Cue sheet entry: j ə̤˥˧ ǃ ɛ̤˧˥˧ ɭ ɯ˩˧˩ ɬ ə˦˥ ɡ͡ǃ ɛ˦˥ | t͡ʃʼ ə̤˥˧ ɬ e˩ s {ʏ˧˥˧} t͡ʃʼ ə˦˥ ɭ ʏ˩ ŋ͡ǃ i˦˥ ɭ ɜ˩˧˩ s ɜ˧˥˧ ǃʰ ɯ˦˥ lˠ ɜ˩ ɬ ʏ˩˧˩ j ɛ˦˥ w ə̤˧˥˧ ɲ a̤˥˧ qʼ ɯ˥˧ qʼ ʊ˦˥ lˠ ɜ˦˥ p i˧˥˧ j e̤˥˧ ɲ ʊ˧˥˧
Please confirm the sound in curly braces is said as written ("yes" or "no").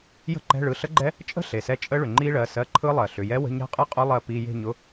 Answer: no